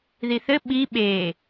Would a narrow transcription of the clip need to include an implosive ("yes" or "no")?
yes